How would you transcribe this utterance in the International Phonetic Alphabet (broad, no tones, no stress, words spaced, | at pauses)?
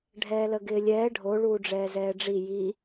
ɖʱɛːləɡɪːlʲɛː ɖʱo ɭuːɖ͡ʐɛːzɛːɖ͡ʐi ji